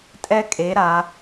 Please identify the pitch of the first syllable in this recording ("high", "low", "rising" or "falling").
high